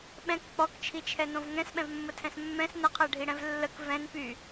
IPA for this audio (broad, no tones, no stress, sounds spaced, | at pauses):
ɓ ɛ̃ k k͡p ɔ k t͡ʃʰ i t͡ʃʰ ɛ n õ v ŋ ɛ̃ s ɓ ɛ̃ v mː ə tʰ ɛ̃ s mː ɛ̃ s n ə qʰ ɛ ɖʱ i ɽ ɛ̃ v lː ə k v ɛ̃ n p y